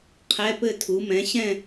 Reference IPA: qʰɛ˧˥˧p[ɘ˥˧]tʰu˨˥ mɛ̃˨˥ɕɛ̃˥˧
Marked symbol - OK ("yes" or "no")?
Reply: yes